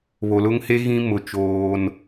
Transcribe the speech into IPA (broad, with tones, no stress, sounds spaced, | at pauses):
β o˨ l ʊ˦ ŋ h e˦ ɣ ĩ˦ m ʊ˨ t͡ʃ oː˦ n